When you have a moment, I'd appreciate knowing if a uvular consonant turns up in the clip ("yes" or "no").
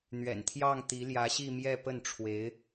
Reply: no